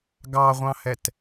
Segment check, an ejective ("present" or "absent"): absent